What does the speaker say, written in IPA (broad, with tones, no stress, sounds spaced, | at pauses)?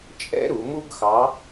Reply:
t͡ʃʼ ɛ̰˥ ɾ u˩˧ m u˥ ɡ x ɑ˧˥